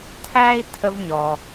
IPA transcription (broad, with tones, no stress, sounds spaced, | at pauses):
tʰ æ˥ i̯ tʰ ə˦ v ɲ ɔ˨